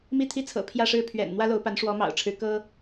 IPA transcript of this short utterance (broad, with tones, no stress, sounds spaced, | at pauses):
m i˥˩ t̪ʰ i˥ t͡sʰ ɤ̰˨˩ pʰ j ä˥˧ ʂ ɻ̩˥˩ pʰ ɥ ɛ̰˨˩ n n̪ w ä˥ l o˧˥ ʊ̯ p a˧˥ n ʂ w ɔ˧˥ m ɑ̰˨˩ ʊ̯ ʈ͡ʂʰ ɻ̩˧˥ k ɤ˥